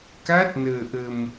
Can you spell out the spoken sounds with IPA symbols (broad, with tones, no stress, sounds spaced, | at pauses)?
k a˦˥ t̚ n əː˧ ʔ ə˧ m